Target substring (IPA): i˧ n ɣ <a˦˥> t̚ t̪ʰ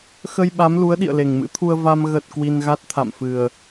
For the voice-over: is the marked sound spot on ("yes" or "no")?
yes